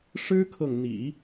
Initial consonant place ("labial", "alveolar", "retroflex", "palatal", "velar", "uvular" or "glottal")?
retroflex